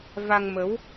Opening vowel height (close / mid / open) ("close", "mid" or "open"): open